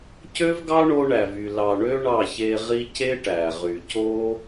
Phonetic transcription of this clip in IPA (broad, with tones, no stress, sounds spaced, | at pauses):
c ø˦ v ɡ ɑ˦ ɳ o˧ ɳ æ˨ v y˨ l ɑ˨ ɳ ø˦ ɳ ɑ˦˨ ç e˧ ʁ i˦ c e˦ ʈ æ˨ ʁ y˨ c o˦